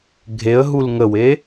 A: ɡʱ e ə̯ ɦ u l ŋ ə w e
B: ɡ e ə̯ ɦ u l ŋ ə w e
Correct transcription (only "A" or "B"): A